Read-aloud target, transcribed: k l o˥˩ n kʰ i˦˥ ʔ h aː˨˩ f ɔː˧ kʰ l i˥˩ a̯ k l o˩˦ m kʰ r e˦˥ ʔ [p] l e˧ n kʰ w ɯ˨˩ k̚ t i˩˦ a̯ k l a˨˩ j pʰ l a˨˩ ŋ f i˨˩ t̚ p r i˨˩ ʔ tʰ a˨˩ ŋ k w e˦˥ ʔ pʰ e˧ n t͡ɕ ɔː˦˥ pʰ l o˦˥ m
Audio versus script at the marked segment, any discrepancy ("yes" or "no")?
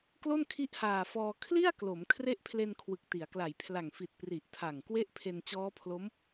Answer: yes